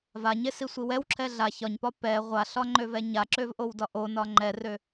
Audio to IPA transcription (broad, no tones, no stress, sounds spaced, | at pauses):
v a ɲ e s i sʷ i w ɛ w ǁʰ ɛ ɮ a ç ɒ ɲ p ɒ p ɛ ʁʷ a ɬ ɒ ŋ͡ǃ ø v ɛ ɲ a ǁ ø v ʔ o w d ɒ ʔ o n ɒ ŋ͡ǃ ɛ r ø